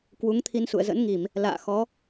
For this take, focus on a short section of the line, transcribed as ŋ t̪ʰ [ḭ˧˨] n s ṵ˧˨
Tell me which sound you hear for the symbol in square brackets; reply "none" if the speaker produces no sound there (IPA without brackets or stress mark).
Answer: i˧